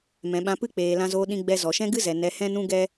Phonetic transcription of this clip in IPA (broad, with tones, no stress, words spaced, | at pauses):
mɛ̃˨ɓã˧pɨ˦k͡peː˨ lã˧zoː˧ ɗĩ˧ɡ͡bɛ˧ zɔ˨ʃɛ̃˦ɡɨ˦zɛ˨ nɛ˨˦hɛ̃˦nũ˦ ɡɛ˦